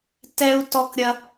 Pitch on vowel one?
high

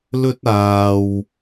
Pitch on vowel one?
high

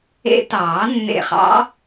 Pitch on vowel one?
rising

